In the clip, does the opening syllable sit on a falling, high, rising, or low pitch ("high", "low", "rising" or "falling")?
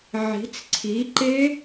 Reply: rising